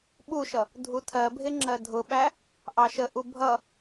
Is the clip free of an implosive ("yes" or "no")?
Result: no